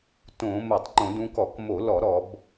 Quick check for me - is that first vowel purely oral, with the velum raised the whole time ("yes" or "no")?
no